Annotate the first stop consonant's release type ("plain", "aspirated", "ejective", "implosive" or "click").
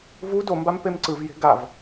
plain